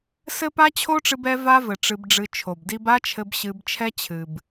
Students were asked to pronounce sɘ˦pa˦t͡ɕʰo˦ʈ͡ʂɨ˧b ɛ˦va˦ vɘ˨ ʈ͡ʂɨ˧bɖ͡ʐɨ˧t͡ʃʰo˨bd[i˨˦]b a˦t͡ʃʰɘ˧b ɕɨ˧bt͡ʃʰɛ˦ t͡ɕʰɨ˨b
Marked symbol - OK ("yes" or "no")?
no